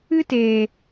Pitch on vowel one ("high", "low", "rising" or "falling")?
high